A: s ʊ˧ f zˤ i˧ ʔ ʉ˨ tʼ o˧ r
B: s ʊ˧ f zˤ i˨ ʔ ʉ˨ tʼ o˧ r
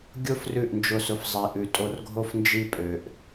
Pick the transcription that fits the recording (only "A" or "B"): B